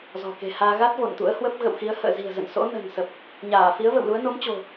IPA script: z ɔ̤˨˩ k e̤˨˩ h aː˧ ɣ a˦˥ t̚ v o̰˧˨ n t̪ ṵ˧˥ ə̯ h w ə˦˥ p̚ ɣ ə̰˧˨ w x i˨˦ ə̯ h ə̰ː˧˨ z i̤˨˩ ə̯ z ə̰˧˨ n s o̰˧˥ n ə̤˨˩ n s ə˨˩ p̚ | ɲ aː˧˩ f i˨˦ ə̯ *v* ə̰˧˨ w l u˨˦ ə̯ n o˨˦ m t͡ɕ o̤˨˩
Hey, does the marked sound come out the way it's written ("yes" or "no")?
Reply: yes